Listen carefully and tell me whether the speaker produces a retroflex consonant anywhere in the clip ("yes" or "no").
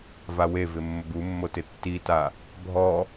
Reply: no